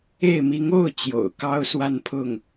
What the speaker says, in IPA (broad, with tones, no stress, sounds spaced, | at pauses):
e˥˩ ɪ̯ m i˧˥ ŋ o˥˩ ʊ̯ t͡ɕ j o̰˨˩ ʊ̯ k ɑ˥ ʊ̯ s w a˥˧ n pʰ ʊ˥˩ ŋ